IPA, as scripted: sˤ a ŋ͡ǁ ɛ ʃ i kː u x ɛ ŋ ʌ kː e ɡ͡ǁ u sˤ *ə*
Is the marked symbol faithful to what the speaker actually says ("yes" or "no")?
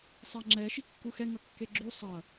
no